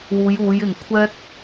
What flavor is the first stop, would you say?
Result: aspirated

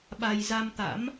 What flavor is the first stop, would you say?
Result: implosive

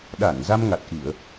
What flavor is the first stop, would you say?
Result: implosive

